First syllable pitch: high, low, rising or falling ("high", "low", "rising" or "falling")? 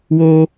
high